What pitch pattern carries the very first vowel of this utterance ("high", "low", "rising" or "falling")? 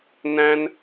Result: high